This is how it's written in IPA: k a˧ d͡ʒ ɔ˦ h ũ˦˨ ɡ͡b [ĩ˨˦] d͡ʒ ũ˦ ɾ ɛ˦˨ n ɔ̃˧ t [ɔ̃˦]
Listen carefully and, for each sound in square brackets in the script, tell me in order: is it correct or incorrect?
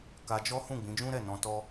correct, incorrect

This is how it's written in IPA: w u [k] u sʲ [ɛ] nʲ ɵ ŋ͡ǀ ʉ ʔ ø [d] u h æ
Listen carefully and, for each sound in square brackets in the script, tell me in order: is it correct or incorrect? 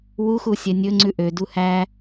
incorrect, correct, correct

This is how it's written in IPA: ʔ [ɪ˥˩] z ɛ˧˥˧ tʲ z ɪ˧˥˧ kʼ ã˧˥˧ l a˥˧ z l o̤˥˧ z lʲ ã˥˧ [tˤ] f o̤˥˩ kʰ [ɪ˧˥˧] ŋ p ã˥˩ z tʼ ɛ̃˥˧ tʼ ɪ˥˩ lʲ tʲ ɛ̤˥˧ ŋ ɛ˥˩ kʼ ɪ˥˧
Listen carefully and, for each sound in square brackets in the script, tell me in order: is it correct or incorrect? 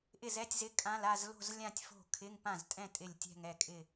correct, incorrect, correct

